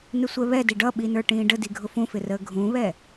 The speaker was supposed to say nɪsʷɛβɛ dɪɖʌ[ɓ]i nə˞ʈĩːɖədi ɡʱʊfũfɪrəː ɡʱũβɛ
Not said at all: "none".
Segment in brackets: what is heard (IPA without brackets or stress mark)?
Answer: ɓ